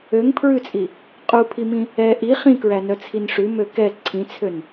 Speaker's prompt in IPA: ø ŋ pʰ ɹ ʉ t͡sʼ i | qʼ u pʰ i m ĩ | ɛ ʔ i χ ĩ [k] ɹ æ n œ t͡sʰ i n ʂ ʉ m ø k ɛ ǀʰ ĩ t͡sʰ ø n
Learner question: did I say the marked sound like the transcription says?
yes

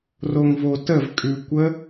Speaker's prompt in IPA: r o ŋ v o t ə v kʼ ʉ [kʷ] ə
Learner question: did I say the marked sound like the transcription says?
yes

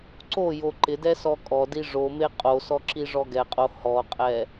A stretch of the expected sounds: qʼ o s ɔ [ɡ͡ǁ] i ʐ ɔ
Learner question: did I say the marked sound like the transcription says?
no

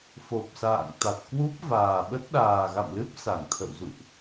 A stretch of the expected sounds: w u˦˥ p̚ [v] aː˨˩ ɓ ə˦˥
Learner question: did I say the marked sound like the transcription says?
yes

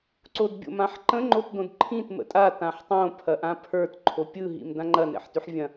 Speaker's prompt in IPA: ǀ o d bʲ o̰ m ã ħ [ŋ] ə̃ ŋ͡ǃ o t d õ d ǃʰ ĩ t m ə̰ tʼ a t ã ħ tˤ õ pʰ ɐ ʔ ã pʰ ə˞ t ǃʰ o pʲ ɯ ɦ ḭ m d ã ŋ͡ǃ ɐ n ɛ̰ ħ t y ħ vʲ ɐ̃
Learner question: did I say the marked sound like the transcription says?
no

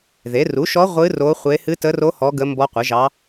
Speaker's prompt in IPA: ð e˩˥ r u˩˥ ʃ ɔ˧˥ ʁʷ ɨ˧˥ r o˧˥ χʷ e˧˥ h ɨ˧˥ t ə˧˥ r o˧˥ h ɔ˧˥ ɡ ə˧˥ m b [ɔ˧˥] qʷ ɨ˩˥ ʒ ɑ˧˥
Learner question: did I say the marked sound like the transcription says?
yes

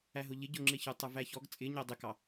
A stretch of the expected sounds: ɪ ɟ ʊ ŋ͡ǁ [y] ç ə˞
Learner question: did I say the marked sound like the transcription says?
no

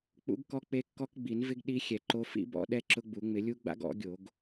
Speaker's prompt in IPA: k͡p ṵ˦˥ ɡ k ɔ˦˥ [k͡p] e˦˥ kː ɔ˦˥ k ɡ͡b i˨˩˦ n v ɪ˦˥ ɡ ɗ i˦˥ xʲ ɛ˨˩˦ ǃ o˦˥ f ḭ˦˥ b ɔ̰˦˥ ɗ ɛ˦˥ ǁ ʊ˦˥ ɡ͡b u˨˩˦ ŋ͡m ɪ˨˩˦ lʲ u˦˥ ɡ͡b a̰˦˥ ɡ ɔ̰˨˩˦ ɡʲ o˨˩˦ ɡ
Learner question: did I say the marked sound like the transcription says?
yes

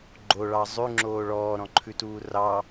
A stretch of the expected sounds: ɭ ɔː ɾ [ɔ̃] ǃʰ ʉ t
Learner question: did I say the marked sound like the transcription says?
yes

